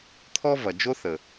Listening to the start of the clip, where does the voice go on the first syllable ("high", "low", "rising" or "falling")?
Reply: high